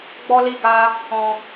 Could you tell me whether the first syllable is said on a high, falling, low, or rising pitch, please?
high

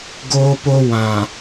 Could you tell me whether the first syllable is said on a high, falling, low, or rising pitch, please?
high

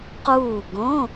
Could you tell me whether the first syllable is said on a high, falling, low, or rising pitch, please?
falling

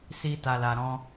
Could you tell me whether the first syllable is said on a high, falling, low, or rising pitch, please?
high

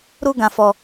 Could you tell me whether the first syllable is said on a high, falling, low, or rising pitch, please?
high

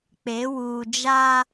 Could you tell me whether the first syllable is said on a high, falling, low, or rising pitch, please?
rising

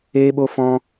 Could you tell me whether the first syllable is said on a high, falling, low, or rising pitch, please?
high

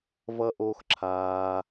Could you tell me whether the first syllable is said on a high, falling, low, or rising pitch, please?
high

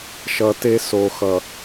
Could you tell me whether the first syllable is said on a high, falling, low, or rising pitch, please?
low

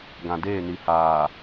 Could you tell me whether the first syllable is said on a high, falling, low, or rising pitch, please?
low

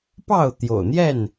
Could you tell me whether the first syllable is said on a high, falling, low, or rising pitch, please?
falling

